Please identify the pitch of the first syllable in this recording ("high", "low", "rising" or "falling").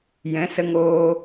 rising